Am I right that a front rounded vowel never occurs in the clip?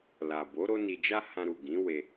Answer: yes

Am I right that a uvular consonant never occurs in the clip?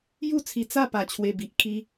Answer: yes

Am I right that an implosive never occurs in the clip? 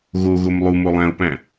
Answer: yes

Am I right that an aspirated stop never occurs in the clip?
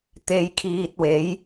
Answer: no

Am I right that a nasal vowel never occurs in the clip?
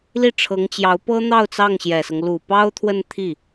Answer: yes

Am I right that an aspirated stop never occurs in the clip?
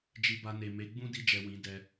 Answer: yes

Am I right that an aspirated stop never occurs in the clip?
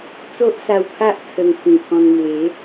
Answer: no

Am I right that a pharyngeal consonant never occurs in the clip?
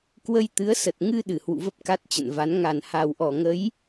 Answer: yes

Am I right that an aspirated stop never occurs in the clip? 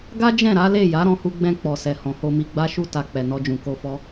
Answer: yes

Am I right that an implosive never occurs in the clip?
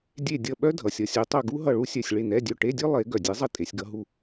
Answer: no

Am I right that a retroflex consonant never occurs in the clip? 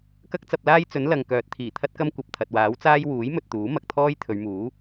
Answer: yes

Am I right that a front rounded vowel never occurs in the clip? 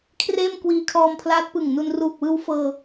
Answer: yes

